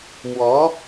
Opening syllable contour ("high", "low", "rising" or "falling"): rising